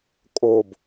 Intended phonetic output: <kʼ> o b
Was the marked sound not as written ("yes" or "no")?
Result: no